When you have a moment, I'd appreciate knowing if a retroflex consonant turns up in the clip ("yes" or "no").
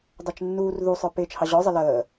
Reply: no